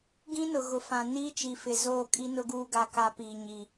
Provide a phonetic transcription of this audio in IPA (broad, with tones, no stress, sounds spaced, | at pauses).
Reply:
ɡ ĩ˦ n ʊ˨ ɣ ʊ˨ f ã˨ n iː˦ t͡ʃ i˨ f ɪ˨ z oː˦˨ kʼ i˦ n ʊ˦ ɡ uː˦ ɡ a˦ k a˦ p iː˨ ɲ i˨